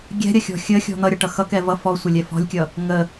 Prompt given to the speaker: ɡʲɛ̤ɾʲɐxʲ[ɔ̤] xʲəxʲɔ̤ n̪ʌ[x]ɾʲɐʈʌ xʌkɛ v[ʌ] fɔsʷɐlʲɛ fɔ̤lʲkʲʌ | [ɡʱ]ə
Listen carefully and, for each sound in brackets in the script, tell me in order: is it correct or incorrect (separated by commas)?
correct, incorrect, correct, incorrect